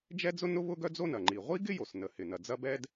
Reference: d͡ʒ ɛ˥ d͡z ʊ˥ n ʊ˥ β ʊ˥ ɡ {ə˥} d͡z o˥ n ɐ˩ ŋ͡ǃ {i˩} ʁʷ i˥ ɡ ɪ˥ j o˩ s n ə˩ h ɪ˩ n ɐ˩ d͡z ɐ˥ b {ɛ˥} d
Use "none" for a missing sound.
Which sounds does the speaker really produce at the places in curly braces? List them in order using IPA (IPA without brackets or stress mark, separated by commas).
œ˥, i˩, ɛ˥